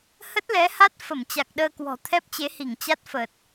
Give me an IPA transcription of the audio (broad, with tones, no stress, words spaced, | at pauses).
hə˦˥t̚lɛ˨˦ha˦˥t̚ fə˧˩mt͡ɕa˨˩k̚ɗəː˧kwɔ̤˨˩ t̪ʰɛ˦˥p̚t͡ɕe˨˦hi˧˩ŋ t͡ɕa˦˥t̚fəː˨˩t̚